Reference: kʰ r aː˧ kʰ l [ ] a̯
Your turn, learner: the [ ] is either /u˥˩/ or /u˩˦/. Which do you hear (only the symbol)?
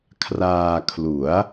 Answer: u˩˦